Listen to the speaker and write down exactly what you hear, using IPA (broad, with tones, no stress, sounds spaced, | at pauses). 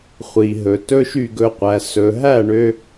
χʷ i˨ ɦ ɵ˨ t ɵ˦ ʃ y˦˨ ɡ ɵ˧ qʷ æ˨ s ɵ˨ ɦ æ˦˨ ɳ ø˧